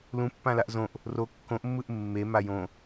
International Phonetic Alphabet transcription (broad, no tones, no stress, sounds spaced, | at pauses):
l ũ pː ã l a ʔ z õ ʔ | r o kː õ ʔ mː ɯ ʔ mː e m a j õ